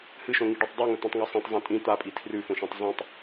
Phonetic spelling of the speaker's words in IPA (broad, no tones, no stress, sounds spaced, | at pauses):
h ɨ ʃ õ ŋ i ɖ ʉ tˤ dˤ i ŋ ɵ t̪ ũ tˤ ŋ o sˤ ĩ tˤ zˤ õ tʼ ĩ t̪ a pʼ i tʰ r ʉ f õ ʃ ĩ tˤ z ĩ tˤ